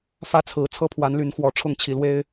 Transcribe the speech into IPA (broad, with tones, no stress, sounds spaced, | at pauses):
f ä˦ t͡sʰ ɹ̩˨˩ t͡sʰ ɤ˦ pʰ w a˨˦ n l y˨˦ n x w ɔ˨˩ ʈ͡ʂʰ ʊ˥˨ ŋ t͡ɕʰ i˨˩ l w e˦ ɪ̯